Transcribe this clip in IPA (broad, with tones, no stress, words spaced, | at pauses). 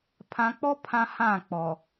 pʰã˨k͡pɔ˦ pʰã˦ hã˦˨k͡pɔ˨